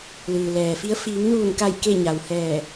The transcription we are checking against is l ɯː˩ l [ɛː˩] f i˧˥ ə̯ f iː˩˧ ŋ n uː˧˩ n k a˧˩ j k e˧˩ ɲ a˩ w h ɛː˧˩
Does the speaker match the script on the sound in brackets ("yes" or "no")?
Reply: yes